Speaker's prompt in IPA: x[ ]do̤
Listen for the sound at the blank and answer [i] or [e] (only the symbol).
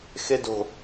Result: e